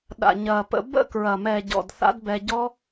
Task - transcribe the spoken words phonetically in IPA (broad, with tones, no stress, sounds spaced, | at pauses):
ɗ a̰˨ ɲ ɐː˨ p ə̰˧ b ə̰˦˨ k ɹ ɐ˨ m ɛ˨ ɟ ɔ̰˨ d θ a̰˦ d b ɛ˧ ɟ ɔ˦